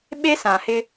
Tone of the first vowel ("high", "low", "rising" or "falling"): high